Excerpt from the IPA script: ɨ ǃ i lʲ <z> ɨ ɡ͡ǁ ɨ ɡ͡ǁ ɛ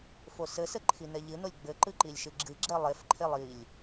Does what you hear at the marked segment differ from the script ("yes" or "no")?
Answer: yes